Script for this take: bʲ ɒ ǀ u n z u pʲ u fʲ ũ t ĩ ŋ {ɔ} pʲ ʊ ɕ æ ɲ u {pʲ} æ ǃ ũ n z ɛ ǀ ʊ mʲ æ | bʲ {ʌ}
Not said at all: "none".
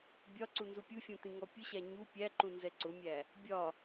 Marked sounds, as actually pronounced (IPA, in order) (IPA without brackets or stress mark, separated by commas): ɔ, pʲ, ɒ